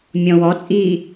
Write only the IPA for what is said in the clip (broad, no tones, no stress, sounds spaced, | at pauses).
mʲ ɔ̃ w ɔ t͡sʼ iː